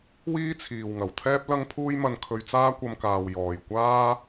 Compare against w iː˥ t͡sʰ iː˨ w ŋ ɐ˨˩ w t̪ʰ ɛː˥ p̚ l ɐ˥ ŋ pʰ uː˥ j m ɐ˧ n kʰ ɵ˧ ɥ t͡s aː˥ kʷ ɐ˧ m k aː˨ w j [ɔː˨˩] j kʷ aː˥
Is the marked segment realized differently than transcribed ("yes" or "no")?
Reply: no